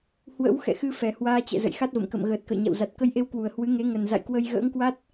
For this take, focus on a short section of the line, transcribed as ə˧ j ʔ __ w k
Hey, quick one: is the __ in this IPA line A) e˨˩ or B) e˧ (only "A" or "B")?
B